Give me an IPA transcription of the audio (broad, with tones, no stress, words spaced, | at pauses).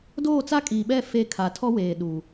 doː˦˨t͡sa˦kʼiː˨ɓɛ˦˨ fe˦ kʰa˨tʰɔ˦weː˨ ɗu˨